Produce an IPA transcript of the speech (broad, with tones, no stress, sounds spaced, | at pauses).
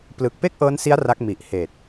p l ɯ˨˩ k̚ p e˥˩ k̚ ʔ ɤː˦˥ n s i˦˥ a̯ r a˦˥ k̚ m i˨˩ ʔ h eː˨˩ t̚